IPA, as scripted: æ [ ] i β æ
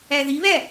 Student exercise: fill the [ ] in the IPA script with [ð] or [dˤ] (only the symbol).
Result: ð